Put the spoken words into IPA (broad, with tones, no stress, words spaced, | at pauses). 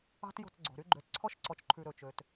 ɑ̤˦tjo̤˦˨t͡sɡ͡ǀo̤˨ɾy˦ ɡ͡ǃø˨tǀʰɔ˦ʃ ǀɔ˨t͡ʃǃʰʉ˨ ɾɵ˨t͡ʃø˨t